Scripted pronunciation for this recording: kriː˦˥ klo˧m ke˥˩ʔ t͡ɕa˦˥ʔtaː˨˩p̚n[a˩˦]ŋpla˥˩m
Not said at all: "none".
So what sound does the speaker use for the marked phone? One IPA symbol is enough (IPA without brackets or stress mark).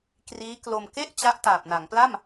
a˩˦